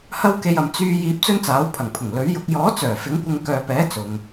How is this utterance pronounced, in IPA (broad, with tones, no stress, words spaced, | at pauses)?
hɐ˥wke˧jɐ˨m t͡syː˧ jiː˧p̚t͡sɵ˥nt͡saː˨˥w pʰɐ˨˩ŋpʰʊ˨˩ŋ lɵ˨˥ɥjʊ˨˥k̚ jɔː˨˥t͡sœː˨˩ fɪ˨˥ŋkʷɪ˧ŋ kœː˨pɛː˨˥ t͡sʊ˨ŋ